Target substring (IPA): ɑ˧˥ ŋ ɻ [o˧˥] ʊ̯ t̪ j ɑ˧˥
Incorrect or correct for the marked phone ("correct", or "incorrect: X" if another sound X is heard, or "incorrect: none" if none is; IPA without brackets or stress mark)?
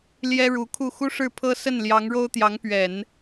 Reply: incorrect: o˥